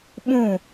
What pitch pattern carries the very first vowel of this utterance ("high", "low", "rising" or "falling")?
falling